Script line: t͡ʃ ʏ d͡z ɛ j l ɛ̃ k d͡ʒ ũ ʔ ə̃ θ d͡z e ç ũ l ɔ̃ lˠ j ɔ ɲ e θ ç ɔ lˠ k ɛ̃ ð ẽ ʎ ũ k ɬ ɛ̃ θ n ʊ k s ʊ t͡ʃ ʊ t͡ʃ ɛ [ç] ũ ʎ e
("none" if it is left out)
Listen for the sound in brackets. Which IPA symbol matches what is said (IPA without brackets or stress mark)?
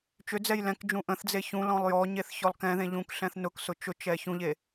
ç